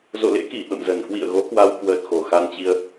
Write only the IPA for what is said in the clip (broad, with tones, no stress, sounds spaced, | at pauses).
z o̰˧˨ l ḛ˧˥ k i˧˩ ɓ ə̰˧˨ m z ə˨˩ n k w ḭ˧˨ ə̯ ɣ o˨˦ k w a˧ w k w əː˨˩ t̚ x o˨˩ x a˧ n t͡ɕ i˧ ə̯